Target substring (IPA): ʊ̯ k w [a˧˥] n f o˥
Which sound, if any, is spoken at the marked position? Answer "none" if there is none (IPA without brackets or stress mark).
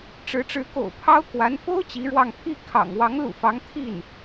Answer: a˧˥